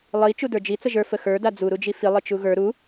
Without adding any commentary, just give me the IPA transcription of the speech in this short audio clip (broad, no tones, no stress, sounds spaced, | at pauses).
lˠ i t͡ʃ u d ə˞ d͡ʒ i t͡s ə ʒ ə˞ f ə x ə˞ d a d͡z u ɾ u d͡ʒ i f i lˠ i t͡ʃ u ɣ ə˞ ɾ u